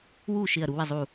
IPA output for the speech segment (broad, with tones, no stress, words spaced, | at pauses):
wu˥˨ ʃɪ˥˨ɐ̯ ɾu˧˥wɪ˥˨zˤu˥˨